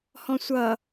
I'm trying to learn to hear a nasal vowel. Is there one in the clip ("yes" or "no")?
yes